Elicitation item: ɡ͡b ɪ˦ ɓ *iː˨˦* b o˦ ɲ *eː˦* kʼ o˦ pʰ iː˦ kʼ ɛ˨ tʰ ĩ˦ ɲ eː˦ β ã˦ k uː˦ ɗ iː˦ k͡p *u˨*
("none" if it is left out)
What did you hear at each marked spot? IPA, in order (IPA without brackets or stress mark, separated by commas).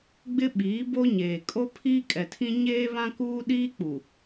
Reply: iː˨˦, eː˨, u˨